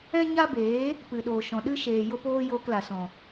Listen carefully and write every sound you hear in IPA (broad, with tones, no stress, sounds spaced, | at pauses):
ɛ̃˦ ɲ a˦ b eː˨˦ | p ɨ˨ ɗ oː˨ ʃ ɔ̃˨ ɗ ɨ˦ ʃ eː˨ j o˦ p oː˦ j oː˧ k l a˨ s ɔ̃˨